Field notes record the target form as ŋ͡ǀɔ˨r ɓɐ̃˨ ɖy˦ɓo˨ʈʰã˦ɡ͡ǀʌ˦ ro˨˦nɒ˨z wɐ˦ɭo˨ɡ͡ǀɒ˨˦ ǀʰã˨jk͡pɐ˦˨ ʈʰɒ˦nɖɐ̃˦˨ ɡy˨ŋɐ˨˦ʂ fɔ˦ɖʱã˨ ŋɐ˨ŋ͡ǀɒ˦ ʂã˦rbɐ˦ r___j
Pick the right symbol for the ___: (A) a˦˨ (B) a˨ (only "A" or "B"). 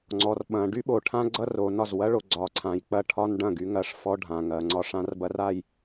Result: A